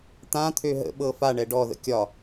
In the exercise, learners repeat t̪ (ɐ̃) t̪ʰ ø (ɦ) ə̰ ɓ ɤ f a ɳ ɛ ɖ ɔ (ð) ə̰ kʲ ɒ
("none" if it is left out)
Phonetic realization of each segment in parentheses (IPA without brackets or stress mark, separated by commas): ã, ɦ, ð